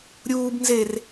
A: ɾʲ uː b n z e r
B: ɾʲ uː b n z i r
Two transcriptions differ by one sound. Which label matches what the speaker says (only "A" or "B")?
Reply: A